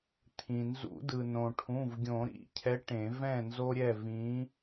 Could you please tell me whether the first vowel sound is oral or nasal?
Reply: nasal